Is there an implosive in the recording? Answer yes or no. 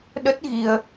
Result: yes